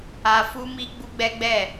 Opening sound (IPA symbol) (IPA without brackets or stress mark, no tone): a